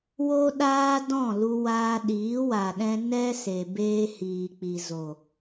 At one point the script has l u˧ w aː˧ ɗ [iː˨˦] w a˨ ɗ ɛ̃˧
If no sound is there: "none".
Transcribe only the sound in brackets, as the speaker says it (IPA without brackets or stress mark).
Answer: iː˨˦